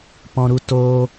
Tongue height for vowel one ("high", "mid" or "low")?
mid